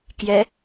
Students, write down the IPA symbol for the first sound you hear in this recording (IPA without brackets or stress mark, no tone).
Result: k